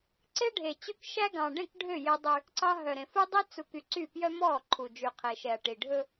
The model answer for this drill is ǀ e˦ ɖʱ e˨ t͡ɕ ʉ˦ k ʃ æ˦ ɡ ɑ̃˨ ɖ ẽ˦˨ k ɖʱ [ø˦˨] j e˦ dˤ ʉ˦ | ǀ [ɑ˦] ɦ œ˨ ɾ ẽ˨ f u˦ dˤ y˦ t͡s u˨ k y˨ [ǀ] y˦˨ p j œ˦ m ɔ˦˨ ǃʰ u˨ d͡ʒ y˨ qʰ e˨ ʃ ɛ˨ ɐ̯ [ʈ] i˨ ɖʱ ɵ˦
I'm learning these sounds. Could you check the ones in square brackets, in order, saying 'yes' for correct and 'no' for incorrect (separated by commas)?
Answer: yes, yes, yes, yes